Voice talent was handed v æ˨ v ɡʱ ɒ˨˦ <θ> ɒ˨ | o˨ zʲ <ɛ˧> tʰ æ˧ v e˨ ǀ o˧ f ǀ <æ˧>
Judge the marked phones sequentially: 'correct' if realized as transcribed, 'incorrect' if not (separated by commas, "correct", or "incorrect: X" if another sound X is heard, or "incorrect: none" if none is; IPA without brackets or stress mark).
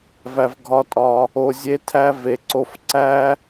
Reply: incorrect: tʼ, incorrect: e˧, incorrect: æ˦